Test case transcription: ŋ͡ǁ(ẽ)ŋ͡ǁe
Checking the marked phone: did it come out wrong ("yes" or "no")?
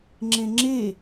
no